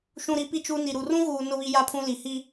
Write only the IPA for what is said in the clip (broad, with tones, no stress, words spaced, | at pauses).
ʃũ˨ɾi˨pi˨t͡ʃu˨ ni˨ɾu˨rũ˦ ɣuː˨ nʊ˨βi˨ja˨pʰũ˨ li˨hi˦